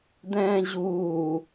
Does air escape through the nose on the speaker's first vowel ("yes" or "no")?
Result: yes